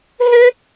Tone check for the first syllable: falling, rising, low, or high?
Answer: high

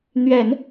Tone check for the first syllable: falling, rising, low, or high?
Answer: low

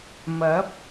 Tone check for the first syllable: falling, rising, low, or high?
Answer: rising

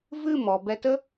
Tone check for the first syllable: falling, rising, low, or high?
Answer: falling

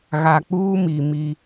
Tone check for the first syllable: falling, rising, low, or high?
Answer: low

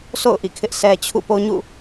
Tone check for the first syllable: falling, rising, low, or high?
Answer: falling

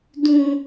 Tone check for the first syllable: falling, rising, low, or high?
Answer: high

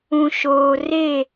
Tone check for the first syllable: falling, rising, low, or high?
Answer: low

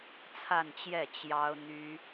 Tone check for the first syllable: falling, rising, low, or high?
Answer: falling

